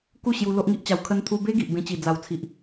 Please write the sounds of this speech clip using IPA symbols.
ku˥˧ɕju˧ lo˦ʔŋi˦ʔt͡ɕa˧w kʰə˧nt̪ʰu˧be˦ ɡi˨ʔbẽ˧t͡ɕi˨˩ d͡za˨˩wt͡sʰi˨ʔ

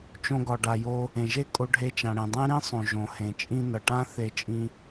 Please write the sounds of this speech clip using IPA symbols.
t͡ʃõ˧ɡɒ˩ɖa˩jo˧ | ẽ˩ʒe˥ kʼo˧ɖʱe˧t͡ʃã˩ɽẽ˩ dˤẽ˥ɾĩ˥sˤõ˩ ʒõ˩hẽ˩t͡ʃʼĩ˧ nʌ˩ʈã˥ θe˧t͡ʃʼĩ˧

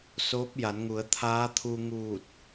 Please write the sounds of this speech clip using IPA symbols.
soː˧˥p̚ ja˩˧nŋu˩˧ə̯ t̪ʰaː˧˥t̪ʰu˧ŋuː˧˩t̚

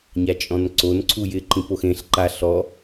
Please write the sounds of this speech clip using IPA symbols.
ɲat͡ʃʼɔ̃nǀon ǀʰujɪ ǃĩpoxẽɬ ǃa ɬɔ

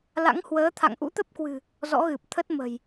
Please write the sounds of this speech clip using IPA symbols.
la̰˧˥ŋhwəː˨˦ t̪ʰa̰˧˨ŋʔṵ˧˥t̪ə˦˥p̚kwɨ̤˨˩ | zɔ̰˧˥ɣɨ˨˩p̚ t̪ʰə˦˥t̚mə̤˨˩j

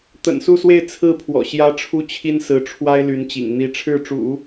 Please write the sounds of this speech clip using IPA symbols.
t̪ə̰˨˩nsu˥˧swe˥˧ɪ̯ t͡sʰɹ̩˥˩pʰwɔ̰˨˩ ɕjä˧˥ ʈ͡ʂʰu˥t͡ɕʰi˥nsɹ̩˧˥ ʈ͡ʂʰwa˥ɪ̯ly˧˥nt͡ɕḭ˨˩ŋ n̪i˧˥ʈ͡ʂʰɻ̩˥˩ʈ͡ʂṵ˨˩˦

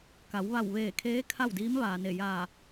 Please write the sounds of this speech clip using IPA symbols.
ka˩˧w ʋa˧˩w ʋeː˧˩kʰeː˧˥ kʰa˥˨wdiː˧˥m ʋaː˩ne˧˩ jaː˧˩

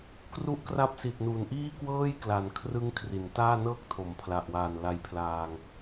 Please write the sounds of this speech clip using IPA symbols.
kru˦˥ʔkra˦˥p̚si˨˩t̚ nu˨˩n ʔiː˥˩kwɤː˥˩j kla˩˦nkʰrɯ˦˥ŋ kʰri˩˦ntaː˥˩nɤː˥˩k̚tʰo˩˦m pʰla˨˩ʔwaː˨˩nla˧jpʰlaː˧ŋ

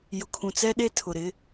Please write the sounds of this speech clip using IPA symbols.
jʊ˨kʰũ˨t͡sɛ˦ɗe˦ tʰʊ˨ɾɪ˦

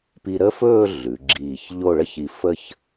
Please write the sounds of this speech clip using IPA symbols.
pi˧ɾə˥fɵː˥˧ ɮʉ˩˧ ɡ͡ǁiː˧˩çʎo˥˧ɭə˥çi˧ fə˥˧ç

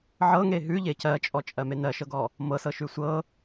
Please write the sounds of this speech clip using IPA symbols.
ʕɤŋe ɦʉʎe cɜt͡ʃʼɔt͡ʃʼɜme nɜʃɤɡɔ | mɤsɤʃʉ sʷɤ

